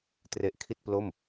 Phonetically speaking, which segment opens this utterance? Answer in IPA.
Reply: t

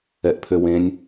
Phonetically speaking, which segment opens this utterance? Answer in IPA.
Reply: ɛ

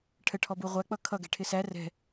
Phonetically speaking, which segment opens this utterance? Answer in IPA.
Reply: ʈʰ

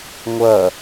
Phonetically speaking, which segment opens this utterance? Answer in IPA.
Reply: ŋʷ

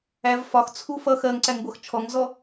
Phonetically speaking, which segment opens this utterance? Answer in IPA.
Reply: æ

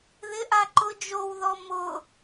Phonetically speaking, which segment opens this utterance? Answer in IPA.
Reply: ð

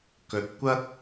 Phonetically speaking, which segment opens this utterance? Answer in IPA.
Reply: k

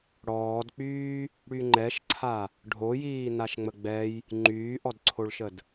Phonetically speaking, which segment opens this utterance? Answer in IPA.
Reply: ɽ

